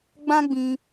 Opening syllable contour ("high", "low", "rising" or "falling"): high